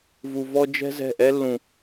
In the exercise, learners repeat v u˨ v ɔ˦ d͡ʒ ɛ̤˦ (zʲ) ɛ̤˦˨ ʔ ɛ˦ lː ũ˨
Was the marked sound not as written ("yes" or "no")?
yes